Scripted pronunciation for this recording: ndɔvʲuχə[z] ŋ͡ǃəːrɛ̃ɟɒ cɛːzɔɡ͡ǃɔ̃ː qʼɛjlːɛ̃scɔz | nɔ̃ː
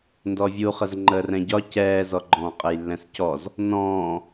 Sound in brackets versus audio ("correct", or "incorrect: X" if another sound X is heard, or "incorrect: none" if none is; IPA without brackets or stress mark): correct